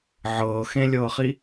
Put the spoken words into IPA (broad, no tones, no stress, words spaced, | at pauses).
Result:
ʕɤː xẽlʲɤːχi